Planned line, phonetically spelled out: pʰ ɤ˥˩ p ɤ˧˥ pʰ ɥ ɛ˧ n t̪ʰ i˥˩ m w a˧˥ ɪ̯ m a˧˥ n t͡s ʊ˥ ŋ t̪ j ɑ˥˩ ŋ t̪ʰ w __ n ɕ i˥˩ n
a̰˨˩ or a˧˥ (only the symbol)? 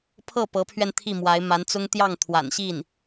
a̰˨˩